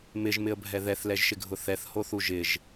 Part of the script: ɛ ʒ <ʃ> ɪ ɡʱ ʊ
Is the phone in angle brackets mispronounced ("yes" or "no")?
no